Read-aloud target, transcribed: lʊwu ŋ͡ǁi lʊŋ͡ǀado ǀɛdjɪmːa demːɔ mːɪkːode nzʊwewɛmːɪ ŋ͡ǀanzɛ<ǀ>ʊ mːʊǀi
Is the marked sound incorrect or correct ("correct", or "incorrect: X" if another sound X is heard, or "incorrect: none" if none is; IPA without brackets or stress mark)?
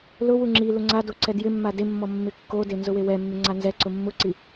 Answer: correct